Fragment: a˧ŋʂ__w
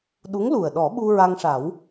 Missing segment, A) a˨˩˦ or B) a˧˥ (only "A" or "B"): A